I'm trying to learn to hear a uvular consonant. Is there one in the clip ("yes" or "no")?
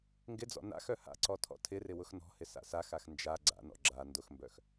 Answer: no